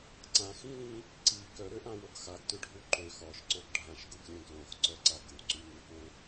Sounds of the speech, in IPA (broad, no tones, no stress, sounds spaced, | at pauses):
ǀ ã x ĩ l ĩ | ǀ i k œ ɾ ø ʔ ã w o ɡ x a ɡ t ʏ ɖʱ u ǃ ø x ɔ ʃ ǀ o ɡ ɖʱ ã ʃ ɡ u ɡ lʲ œ̃ ɡ l õ x ǀ œ ǀ a ɡ u ǀ y ŋ y h õ